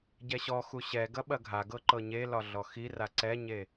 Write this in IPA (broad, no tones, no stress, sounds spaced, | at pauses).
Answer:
ɟ ɛ ɕ ɔ x u ɕ ɛ ɡ ɐ ɓ ɐ ɡʱ a ɡ ɤ ǃ ɤ ɲ e l ɒ ɮ ɔ x i r a ǀ ɛ ɲ e